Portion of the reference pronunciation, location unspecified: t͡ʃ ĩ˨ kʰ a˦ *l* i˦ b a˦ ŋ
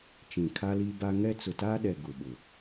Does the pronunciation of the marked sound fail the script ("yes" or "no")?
no